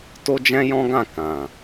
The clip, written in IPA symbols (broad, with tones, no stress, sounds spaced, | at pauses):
t o˦ d͡ʒ ɛ̃˦ j ɔ̃˦ ɡ ã˦˨ k ã˨